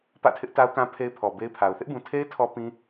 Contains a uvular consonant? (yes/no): no